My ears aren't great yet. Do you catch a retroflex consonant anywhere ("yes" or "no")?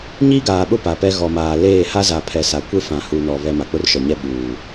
no